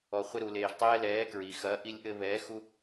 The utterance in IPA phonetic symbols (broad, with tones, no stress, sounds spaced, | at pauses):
ɔ˩ χʷ ɘ˦ ɾ u˩ l eː˩ ʒ tˤ ɛː˦ l ɛː˩˥ k ɹ i˩ x ɐː˩˥ ʔ i˩˥ lʲ ʔ ɘ˦ β ɛː˩˥ x u˦